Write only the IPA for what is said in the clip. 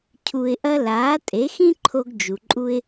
cʰu˧ɪ̯ʔɐ˥ laː˩˥tʼe˩˥xĩ˥ǃʰo˧ɡ d͡ʒu˩ǃʼu˧ɪ̯

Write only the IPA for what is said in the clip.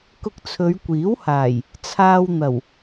kʊ˧k̚t͡sʰɵ˨˧ɥkʷiː˨˥whaː˨˩j | t͡sʰaː˧wn̪ɐ˨˩w

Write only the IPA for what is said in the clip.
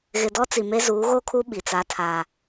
ɣɪ˨dɔ˦t͡si˨me˦ zuː˨˦ɣo˦kʰu˦ ɓi˨t͡sa˦tʰaː˦

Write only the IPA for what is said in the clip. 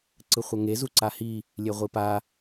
ǀɯχʷʌŋe zuǀahi | lʲeʁʷipa

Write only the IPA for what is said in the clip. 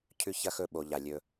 cʰʉ˦çɐ˦ xɵ˦˨ɓo˨ ʎa˨lʲɵ˦

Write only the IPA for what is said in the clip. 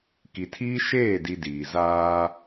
ki˨tʰiː˦ ʃeː˦˨ di˦diː˨ zaː˦

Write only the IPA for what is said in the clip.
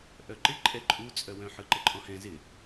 ʔœǃɪ ǃʼɛǃʼu t͡sʼœwœ̃ ħɯǃɘǃʼɔ̃hɛ̃ zɪ

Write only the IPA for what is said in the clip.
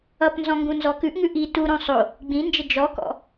ʌpnzɔ̃ ŋɡũnzɔkʉʔŋʉ ʔi tuɾõ sˤo | ɡ͡bĩnd͡ʒə d͡ʒɔkɔ̰

